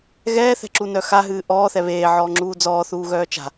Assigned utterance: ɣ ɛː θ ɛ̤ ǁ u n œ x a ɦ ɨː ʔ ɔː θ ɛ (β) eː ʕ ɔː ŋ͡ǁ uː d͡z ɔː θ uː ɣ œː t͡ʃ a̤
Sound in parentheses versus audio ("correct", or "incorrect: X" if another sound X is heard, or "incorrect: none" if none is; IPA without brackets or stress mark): correct